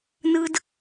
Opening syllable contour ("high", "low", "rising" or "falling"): high